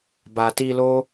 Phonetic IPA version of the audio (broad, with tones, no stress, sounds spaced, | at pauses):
b a˨ t i˧ l o˦